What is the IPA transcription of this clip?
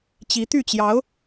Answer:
t͡ɕ i˧˥ t̪ y˥˩ t͡ɕ j ɑ˧˥ ʊ̯

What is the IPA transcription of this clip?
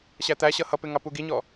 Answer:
ɕ æ t̪ æ ɕ ʌ h ʌ p ɪ ŋ ɑ p u ɡ i ɲ ɔ

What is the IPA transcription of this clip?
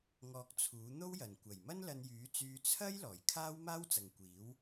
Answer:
ŋ ɔː˧ k̚ t͡sʰ uː˨˥ n̪ o˥ w j ɐ˨˩ n kʷ ɐ˨˩ j m ɐ˥ n l ɐ˧ n j yː˨˥ t͡s yː˧ t͡sʰ ɐ˥ j l ɔː˨˩ j kʰ aː˥ w m aː˥ w t͡s ɐ˨ ŋ kʷ iː˨˥ w

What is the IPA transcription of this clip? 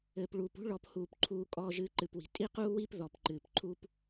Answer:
ɘː˩ p ɭ uː˩ p ṳ˥ ɭ ɔ˨ p h uː˩ p ǃʰ uː˨ kʼ ɔː˨ ʒ ɨː˨ ǃ ɨ˩ p w i̤˩ tʼ i˥ q uː˥ w i˥ p ð ɔ˩ p ǃ ɨː˩ p ǃʰ u˦ p

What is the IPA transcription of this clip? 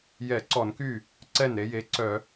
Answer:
j ɛ˧˩˧ ǀ ɔ˧˩˧ n k y˥˩ | ǀ ɛ˥˩ n ɾ e˧˥ j e˩˧˩ ǀ œ˧˩˧

